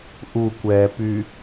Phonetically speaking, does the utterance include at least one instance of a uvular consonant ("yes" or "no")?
no